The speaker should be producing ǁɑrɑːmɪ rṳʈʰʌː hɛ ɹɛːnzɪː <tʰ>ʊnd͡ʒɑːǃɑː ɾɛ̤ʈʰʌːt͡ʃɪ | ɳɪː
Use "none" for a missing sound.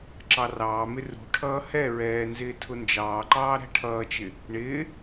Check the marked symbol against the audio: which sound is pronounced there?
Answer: tʰ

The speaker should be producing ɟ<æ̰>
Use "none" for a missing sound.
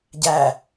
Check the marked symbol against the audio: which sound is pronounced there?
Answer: æ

